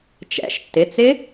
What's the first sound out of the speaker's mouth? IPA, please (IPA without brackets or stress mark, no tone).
t͡ʃ